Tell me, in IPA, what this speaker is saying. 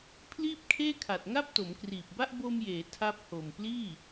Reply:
pʰ l iː˥˩ p̚ kʰ eː˥˩ kʰ a˨˩ t̚ ŋ a˥˩ p̚ t o˩˦ m k r iː˨˩ p̚ b a˥˩ ʔ b o˧ m j eː˩˦ tʰ a˦˥ p̚ h o˨˩ m p l iː˥˩

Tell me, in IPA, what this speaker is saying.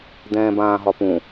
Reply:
d̪ ɛ̃ː b ãː ɦ ɒ p ũ

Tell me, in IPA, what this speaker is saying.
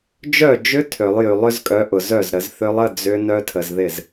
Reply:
d͡ʒ œ˥˩ d͡ʒ ʏ˦˥ tʰ ø˨˩˦ lˠ j y˨˩˦ lˠ ʏ˨˦ z kʼ œ˨˦ ʔ ʊ˨ z œ˥˩ z ɾ ə˨˩˦ z θ ʏ˦˥ lˠ ə˧˥˧ d͡z ʏ˦˥ n œ˦˥ tʰ ə˨ z ð ɪ˥˩ z

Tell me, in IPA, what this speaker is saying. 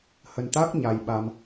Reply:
h ə˧ n t̪ a˦˥ k̚ ɲ a˧ j ɓ a˧ m

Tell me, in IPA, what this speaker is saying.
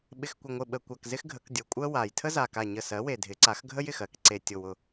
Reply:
ɓ ɪ˨˩ x kʷ ɪ˨˩ ŋʷ ɪ˨˩ ɓ ə˨˩ kʷ a˨˩ k z ɪ˥ x ɡʱ ə˩˥ k dʲ ʊ˨˩ kʷʼ ɜ˥ w a˨˩ j tʰ ə˥ z a˨˩ k a˨˩ ɲ ə˨˩ s ɜ˩˥ w e˨˩ dʱ ɪ˩˥ ǀ a˩˥ x ɡʱ ə˥ j ɪ˨˩ x ɜ˩˥ k ǀ e˨˩ tʲ ʊ˨˩ w ʊ˨˩

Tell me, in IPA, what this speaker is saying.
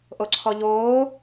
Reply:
ʔ o ǀʰ ɔ ʎ oː

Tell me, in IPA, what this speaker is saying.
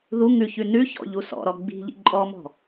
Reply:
ð u ŋ ʉ ç ʉ n ʉ ç ɔ̰ ʎ u s ɔ̰ ɾ ɔ ɡ͡b i̤ ʎ ḭ ǃʼ ɔ m ɔ̤

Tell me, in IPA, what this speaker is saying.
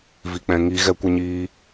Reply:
v i˨ k͡p ɛ̃˨ ŋ i˨ ɣ ɛ˧ kʷ ɛ˧ ɲ iː˧

